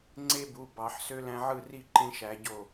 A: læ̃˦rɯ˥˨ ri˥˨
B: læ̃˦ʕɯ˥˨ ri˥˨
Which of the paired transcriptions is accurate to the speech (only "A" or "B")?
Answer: B